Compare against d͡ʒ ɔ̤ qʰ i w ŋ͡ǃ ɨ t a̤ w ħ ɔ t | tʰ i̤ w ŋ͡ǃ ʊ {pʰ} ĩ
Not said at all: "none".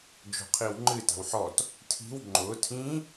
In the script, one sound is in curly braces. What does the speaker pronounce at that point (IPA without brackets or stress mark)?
tʰ